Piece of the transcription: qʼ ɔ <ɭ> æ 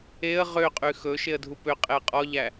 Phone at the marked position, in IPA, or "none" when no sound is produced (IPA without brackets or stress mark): ʎ